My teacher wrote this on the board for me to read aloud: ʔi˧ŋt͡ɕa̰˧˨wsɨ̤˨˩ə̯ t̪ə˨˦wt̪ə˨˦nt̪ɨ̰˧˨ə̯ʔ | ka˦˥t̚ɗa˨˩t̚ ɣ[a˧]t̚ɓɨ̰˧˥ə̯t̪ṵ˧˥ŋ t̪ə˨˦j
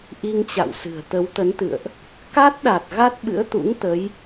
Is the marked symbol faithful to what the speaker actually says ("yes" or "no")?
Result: no